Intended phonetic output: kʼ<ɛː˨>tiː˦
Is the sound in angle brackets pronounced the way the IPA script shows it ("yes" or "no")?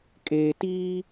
no